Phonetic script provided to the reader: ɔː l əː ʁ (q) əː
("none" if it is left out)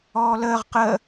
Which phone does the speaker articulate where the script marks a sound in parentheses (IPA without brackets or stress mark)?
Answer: q